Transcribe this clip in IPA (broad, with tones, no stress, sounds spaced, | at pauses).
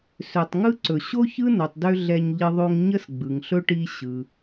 s ø˩ tˤ ŋ ɯ˦ ǀ ɵ˩ ɕ o˥ ç ɯ˥ n o˨ tˤ d ø˦ ɮ ɛ˦ ɲ ʎ ə˦ ðˤ o˦ ŋ ɲ ə˥ s ɡ͡b ɯ˨ ŋ ɬ ɵ˥ ʈ i˦ ɕ ɯ˨